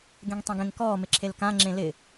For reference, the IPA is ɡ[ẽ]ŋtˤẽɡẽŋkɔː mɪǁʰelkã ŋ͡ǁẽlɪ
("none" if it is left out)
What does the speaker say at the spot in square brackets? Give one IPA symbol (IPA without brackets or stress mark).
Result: ẽ